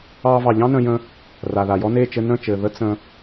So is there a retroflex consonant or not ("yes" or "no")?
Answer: no